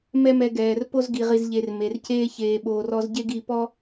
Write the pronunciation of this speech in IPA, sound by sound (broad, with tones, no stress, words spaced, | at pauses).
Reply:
mɛ˦mɛ˧ɡɛː˨r po˦zɡi˨ʁi˨z ʎe˨r me˨rceː˦ çeː˨ɓoː˨rɔ˧zɟe˦ɡ i˧pɔ˦